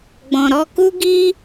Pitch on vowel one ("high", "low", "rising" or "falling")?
low